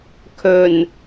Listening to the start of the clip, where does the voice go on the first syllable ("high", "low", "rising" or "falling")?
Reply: low